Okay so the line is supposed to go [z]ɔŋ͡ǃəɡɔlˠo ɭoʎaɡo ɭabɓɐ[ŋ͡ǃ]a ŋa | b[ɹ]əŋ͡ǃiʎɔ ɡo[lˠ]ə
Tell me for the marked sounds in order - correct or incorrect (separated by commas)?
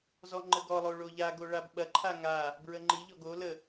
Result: correct, incorrect, correct, incorrect